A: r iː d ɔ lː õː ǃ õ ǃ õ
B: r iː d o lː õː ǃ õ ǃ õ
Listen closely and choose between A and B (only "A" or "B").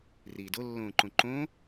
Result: B